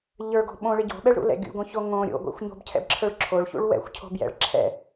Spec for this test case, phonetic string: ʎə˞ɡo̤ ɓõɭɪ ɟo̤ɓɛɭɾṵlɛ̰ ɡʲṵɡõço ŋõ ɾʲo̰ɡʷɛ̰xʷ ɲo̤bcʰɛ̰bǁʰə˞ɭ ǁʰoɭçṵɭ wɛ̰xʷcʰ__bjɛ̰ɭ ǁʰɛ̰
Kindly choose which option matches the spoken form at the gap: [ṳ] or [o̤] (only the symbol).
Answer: o̤